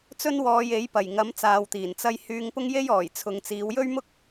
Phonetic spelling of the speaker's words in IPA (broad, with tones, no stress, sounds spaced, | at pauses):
t͡s ɵ˥ n w ɔː˧ j e˨˥ j p ɐ˨˩ j ŋ ɐ˨˥ m t͡s aː˨ w t̪ iː˨˩ n t͡s ɐ˧ j h yː˧ ŋ p ʊ˥ ŋ j e˥ j ɔː˨˩ j t͡sʰ ʊ˨˧ ŋ t͡s iː˨˧ w j ɵ˥ ɥ m ʊ˥ k̚